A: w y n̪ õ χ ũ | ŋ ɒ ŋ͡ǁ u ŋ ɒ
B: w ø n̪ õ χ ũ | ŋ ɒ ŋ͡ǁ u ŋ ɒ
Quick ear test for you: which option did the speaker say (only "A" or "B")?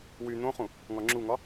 A